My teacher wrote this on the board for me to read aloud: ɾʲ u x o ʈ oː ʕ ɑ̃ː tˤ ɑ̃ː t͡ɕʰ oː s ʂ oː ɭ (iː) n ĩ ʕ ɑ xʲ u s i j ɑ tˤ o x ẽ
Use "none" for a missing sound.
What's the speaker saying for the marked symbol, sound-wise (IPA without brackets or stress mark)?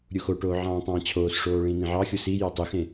ĩː